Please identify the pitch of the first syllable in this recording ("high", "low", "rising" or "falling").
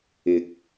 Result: low